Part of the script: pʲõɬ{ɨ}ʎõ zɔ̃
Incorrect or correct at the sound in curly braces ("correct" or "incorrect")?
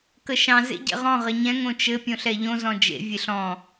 incorrect